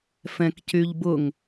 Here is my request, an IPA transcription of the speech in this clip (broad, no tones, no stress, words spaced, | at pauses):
fɛ̃kcyʎbʊŋ